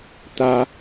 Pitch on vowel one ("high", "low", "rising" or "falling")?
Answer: high